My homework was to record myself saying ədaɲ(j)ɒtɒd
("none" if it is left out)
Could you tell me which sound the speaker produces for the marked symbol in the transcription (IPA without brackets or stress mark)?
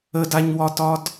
w